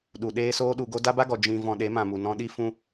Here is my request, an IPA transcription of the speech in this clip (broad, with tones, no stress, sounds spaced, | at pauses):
ɗ u˨ ɗ eː˦ s oː˦ ɗ u˧ ɡ o˦ d a˦ b a˦ ɡ ɔ˨ d͡ʒ ĩ˧ v ɔ̃˧ ɗ e˨˦ m ã˨ m u˨ n ɔ̃˧ ɗ i˦ f ũ˦